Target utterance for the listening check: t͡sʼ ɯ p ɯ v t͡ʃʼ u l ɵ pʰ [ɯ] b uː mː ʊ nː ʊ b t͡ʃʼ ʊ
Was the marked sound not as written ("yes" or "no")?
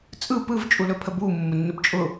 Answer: yes